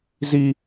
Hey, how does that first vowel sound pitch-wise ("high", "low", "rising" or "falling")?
high